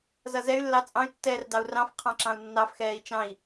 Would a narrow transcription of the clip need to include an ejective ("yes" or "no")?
yes